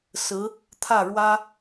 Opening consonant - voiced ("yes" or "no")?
no